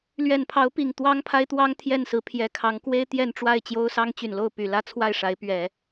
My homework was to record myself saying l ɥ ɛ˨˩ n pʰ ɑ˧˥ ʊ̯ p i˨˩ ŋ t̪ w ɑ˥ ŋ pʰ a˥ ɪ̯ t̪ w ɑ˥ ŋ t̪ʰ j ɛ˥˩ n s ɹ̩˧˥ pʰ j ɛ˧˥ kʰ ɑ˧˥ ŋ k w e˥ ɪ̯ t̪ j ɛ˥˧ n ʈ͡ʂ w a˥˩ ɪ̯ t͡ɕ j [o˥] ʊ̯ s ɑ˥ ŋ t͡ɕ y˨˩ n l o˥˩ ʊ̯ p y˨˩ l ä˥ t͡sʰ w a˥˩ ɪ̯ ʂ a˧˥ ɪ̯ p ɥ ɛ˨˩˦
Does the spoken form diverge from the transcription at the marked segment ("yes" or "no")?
no